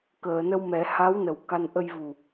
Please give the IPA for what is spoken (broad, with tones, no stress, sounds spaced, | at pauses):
k əː˨˩˨ n ə˧ w m ɛ˨˩˦ h a˧˥ w n ə˨˩ w k a˧ n ʔ ə˧ j v u˨˩